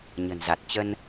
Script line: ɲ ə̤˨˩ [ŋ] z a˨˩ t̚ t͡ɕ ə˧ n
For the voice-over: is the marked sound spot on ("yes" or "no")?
no